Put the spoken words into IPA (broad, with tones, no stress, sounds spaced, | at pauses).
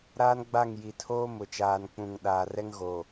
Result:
ɾ aː˦ n ɡ͡b a˦˨ ŋ j i˨ tʰ oː˦ m ʊ˨ t͡ʃ aː˨ n k͡p ũ˨ ŋ ɗ aː˨ r ɛ˦ ŋ ɣ o˨